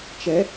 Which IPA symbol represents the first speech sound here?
t͡ʃ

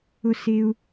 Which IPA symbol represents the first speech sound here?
ʊ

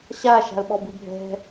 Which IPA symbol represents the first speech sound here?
ɕ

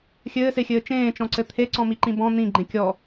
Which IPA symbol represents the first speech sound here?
xʲ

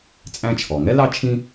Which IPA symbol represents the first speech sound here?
t͡sʼ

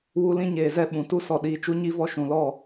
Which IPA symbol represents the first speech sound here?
w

